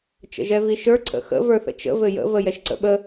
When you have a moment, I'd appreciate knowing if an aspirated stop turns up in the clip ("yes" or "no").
yes